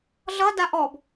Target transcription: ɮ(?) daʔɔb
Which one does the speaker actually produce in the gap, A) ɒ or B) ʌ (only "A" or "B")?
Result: B